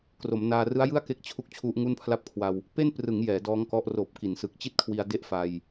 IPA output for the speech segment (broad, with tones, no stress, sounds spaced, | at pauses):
k r o˩˦ m n aː˧ r ɯ˦˥ a̯ j ɯ˥˩ a̯ k e˦˥ k̚ t͡ɕʰ u˥˩ k̚ t͡ɕʰ u˦˥ ʔ ŋ u˥˩ n pʰ l a˥˩ p̚ kʰ w a˧ w | p e˥˩ n p r ɯ˩˦ ŋ j ɛː˩˦ d ɔː˦˥ ŋ k ɔ˦˥ ʔ r oː˨˩ p̚ k i˩˦ n s ɯ˨˩ k̚ t͡ɕ i˥˩ t̚ kʰ w i˧ a̯ d e˥˩ ʔ f a˧ j